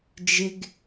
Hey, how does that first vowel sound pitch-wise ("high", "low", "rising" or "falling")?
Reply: high